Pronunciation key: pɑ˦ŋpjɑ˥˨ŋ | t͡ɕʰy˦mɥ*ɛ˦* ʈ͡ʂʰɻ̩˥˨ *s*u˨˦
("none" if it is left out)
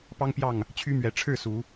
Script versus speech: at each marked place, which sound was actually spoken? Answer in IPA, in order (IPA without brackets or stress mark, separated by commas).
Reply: ɛ˨˦, s